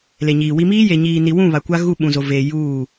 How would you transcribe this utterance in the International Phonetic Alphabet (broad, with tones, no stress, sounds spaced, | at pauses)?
l e˨ ɲ iː˨ w i˦ m iː˦ j e˨ ɲ iː˨ n i˨ w ũ˦˨ β a˨ kʷ a˦ ɣ u˦˨ ɓ ũ˨ z o˨ v eː˨ j uː˦˨